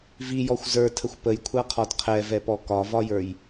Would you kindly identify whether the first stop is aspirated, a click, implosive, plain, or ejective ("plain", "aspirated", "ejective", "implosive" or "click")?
aspirated